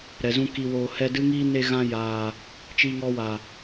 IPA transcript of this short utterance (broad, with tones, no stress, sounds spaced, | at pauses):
ɾ ɛ˨ z ũ˧ k i˨ w oː˨ h ɛ˧ d ɨ˦ ŋ iː˦ n e˧ ɣ ã˧ j aː˨ | t͡ʃ iː˧ ŋ ɔ˧ w a˨